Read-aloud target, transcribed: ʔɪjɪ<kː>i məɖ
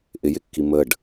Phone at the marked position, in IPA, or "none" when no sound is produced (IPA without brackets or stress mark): kː